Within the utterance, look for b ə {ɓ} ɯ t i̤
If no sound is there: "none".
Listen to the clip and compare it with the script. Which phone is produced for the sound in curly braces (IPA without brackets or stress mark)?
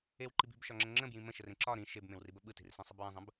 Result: ɓ